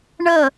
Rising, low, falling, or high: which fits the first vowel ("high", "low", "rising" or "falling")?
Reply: falling